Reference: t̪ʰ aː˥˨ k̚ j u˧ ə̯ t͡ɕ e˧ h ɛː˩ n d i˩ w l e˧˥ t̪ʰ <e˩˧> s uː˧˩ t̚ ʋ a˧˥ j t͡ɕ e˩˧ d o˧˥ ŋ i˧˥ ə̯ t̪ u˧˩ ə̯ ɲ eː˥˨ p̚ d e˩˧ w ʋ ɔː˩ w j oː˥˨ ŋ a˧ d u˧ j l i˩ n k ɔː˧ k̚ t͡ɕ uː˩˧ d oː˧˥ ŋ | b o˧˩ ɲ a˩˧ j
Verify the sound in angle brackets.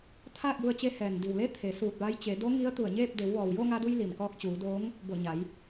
correct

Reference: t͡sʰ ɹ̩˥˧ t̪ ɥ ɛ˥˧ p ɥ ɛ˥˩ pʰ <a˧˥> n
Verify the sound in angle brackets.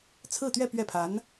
correct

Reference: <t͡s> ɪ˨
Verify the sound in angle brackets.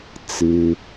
correct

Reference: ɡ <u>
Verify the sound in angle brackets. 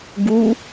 correct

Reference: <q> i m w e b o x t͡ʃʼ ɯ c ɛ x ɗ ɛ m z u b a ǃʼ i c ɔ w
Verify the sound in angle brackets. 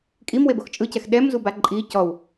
incorrect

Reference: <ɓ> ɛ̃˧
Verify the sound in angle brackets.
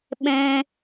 correct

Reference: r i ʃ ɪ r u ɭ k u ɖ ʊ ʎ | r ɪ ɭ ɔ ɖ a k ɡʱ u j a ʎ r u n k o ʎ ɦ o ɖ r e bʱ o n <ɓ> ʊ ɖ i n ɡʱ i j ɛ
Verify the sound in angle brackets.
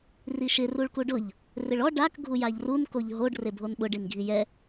correct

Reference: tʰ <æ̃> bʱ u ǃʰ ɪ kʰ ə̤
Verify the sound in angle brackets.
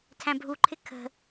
correct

